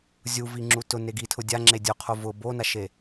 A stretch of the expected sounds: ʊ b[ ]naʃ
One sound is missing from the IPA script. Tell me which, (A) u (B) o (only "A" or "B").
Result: B